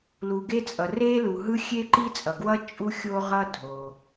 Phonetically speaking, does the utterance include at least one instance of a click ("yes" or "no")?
yes